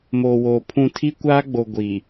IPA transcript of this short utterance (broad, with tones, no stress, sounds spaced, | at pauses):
m oː˨ w oː˨ pʰ ũ˦˨ tʰ i˦ kʷ aː˦ ɡ͡b o˨ ɡʷ i˨